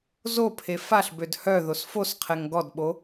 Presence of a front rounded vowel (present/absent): present